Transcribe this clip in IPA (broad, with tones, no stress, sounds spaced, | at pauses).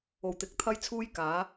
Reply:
o˨ w t̪ ɪ˨˥ k̚ t̪ʰ ɐ˥ j t͡sʰ uː˥ j k aː˨˥